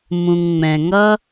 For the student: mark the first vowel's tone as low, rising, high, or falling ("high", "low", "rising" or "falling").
low